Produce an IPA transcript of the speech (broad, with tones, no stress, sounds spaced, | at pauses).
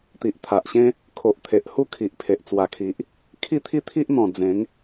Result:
t̪ i˨ ʔ t̪ʰ a˨ ʔ ɕ ẽ˦ | kʰ o˨ ʔ t̪ʰ e˨ ʔ h u˦ kʰ i˨ ʔ pʰ e˨ ʔ t͡s w a˨˩ kʰ i˨ ʔ | kʰ i˥˧ t̪ʰ i˥˧ t̪ʰ i˦ ʔ n̪ ɔ̃˨˩ d͡z ẽ˨˦ ŋ